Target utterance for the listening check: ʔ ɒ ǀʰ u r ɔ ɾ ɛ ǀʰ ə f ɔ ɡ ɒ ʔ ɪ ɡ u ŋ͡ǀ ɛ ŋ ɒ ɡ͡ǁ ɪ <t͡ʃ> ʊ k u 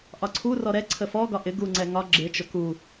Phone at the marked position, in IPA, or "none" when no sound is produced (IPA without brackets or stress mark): t͡ʃ